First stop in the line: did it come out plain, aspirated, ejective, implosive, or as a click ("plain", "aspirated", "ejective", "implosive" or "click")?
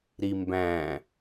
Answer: plain